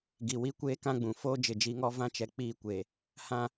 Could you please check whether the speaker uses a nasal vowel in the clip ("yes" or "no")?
yes